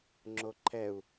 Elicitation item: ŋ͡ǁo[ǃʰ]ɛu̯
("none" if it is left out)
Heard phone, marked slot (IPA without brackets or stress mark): ǃʰ